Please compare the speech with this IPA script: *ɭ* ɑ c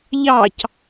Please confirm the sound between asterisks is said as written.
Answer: no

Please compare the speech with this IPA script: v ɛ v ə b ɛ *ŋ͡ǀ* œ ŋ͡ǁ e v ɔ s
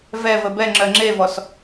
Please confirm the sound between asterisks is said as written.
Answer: no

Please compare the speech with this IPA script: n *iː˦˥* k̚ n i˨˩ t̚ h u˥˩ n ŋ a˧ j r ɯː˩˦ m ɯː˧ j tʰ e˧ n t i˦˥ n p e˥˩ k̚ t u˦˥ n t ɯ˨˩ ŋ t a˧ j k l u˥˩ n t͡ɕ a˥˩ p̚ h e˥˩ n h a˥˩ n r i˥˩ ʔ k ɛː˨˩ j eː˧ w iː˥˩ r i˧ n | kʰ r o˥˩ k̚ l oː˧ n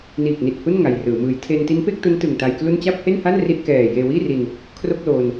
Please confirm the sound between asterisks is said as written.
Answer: no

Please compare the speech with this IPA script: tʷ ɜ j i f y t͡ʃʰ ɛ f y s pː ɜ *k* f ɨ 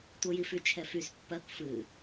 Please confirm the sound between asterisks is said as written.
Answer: yes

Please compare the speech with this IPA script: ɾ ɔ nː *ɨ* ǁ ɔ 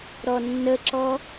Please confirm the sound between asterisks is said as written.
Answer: no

